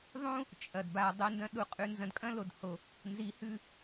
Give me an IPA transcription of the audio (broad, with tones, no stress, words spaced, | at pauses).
ðˤũ˦ | t͡ʃʼɐ˨d ba˧dˤe˦ndɐ̃˦ ɗu˧qʼʉ˧ nzɐ̃˧dkʼɐ̃˦lo˨dho˧ | nzi˨˦hʉ˧